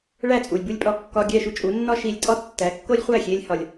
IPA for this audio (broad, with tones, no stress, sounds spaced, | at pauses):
ɭ æ˥˩ t͡sʼ u˩ lʲ b u˥˩ lʲ pʼ ɒ˥˩ kː ɒ˧ ɡʲ æ˥˩ ʃ u˥ t͡ʃʼ u˩˥ nː ɒ˥ ʃ i˧ lʲ tʼ ɒ˥ tː æ˩˥ kː o˥ lʲ χʷ æ˥˩ xʲ e˧ lʲ h ɒ˩ lʲ